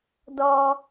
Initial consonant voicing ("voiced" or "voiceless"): voiced